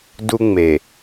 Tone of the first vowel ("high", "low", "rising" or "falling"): high